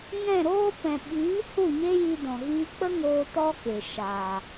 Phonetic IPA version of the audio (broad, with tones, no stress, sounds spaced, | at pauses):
ŋ ɛ̃˦˨ ɾ oː˦ p ɛ̃˨ ɓ iː˨˦ h u˦˨ ɲ e˦ j i˧ d ɔ̃˨ ɣ iː˧ k͡p ə˦ ŋ oː˧ t ɔ˦ k e˨ ʃ aː˨